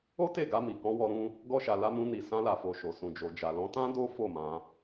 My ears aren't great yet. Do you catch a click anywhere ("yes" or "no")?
no